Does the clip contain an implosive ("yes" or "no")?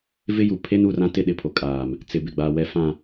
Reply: yes